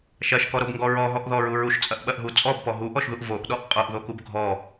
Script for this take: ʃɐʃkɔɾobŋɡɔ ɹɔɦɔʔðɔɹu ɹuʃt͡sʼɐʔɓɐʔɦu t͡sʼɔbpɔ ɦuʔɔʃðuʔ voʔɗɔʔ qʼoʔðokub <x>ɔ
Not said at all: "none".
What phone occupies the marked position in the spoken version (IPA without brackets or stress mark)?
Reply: ɡʱ